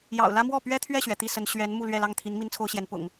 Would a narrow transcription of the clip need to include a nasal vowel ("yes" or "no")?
no